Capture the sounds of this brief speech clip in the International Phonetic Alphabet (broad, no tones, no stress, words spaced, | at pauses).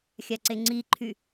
xʲaǀeŋ͡ǀiǃʰy